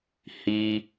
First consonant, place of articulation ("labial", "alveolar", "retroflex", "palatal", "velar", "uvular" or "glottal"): glottal